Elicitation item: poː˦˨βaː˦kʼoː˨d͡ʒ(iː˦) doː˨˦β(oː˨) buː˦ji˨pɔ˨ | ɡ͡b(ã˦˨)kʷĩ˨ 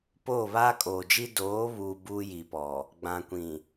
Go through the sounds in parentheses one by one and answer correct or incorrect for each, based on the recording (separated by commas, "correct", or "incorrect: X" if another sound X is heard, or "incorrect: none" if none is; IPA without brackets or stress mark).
incorrect: i˦, incorrect: uː˨, incorrect: ã˨